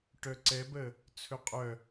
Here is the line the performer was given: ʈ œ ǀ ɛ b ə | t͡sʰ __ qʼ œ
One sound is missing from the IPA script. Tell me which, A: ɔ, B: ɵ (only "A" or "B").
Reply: B